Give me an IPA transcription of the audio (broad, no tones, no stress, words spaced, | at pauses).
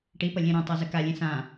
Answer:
ʈipʌ lʲẽɾõtˤa zəkalʲẽ sã